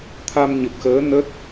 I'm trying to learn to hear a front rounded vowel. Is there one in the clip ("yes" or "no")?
no